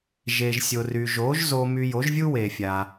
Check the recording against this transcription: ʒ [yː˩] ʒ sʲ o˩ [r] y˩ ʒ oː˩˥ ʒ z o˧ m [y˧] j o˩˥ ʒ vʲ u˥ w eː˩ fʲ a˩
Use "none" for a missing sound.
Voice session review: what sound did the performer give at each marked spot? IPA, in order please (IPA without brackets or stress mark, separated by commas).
eː˩, r, y˧